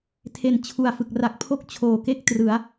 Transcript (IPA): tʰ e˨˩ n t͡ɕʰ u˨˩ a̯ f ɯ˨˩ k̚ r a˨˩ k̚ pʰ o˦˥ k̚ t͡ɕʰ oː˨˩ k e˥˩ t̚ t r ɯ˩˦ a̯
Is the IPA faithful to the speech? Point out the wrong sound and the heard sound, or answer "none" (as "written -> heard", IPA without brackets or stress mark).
t̚ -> k̚